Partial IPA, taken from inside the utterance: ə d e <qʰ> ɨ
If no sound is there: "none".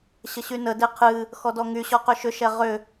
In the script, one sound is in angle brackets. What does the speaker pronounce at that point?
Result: qʰ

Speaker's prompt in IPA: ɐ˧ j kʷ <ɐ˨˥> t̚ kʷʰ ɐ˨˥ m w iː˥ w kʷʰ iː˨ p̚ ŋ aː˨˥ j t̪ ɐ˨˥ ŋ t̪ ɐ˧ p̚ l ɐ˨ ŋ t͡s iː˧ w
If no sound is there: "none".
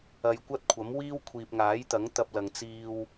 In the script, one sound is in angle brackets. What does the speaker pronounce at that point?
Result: ɐ˥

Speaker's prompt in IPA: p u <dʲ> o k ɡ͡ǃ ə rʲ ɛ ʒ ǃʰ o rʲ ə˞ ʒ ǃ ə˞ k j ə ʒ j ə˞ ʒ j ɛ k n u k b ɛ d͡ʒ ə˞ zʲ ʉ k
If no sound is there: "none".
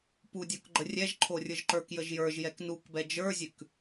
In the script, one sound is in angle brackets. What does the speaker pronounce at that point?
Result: dʲ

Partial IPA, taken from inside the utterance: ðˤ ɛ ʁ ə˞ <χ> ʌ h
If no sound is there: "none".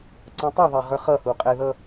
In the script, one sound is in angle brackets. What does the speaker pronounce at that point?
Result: χ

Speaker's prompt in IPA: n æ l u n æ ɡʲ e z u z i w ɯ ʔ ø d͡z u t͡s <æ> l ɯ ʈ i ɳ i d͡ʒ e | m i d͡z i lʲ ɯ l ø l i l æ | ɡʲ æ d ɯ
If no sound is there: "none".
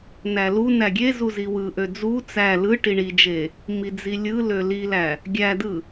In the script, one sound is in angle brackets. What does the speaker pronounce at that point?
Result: æ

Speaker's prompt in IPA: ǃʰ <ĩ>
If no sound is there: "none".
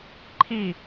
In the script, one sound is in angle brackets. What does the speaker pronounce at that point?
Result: i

